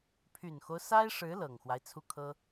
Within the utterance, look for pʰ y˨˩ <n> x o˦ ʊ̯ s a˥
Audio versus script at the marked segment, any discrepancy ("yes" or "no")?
no